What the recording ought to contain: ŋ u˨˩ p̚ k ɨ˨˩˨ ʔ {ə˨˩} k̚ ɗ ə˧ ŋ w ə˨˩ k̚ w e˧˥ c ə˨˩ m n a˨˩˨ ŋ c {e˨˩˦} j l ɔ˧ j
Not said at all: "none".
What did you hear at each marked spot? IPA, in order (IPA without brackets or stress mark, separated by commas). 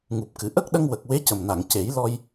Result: ə˦˥, e˨˩˦